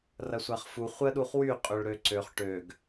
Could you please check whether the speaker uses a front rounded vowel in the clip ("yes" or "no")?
yes